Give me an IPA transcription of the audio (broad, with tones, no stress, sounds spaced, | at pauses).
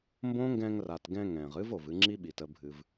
m b õː˦ ŋ ɡ ɛ̃˧ ŋ r a˨ t ɡ ɛ̃˧ ŋ ɛ̃ː˨ ʁ ɨ˦ v o˨ v ɨ˧ ŋ͡ǁ i˦ ɓ i˨ t ə˧ bʱ ɨ˧ v